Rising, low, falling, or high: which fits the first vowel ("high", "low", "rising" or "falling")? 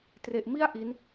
low